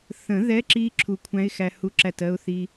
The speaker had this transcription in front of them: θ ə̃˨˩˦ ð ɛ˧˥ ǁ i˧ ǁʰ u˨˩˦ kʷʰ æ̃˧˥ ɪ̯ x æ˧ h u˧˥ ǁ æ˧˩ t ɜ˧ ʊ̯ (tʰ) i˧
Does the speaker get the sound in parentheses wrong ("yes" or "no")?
yes